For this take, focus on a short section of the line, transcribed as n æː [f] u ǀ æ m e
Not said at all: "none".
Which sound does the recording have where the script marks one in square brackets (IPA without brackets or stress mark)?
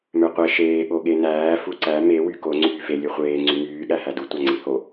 f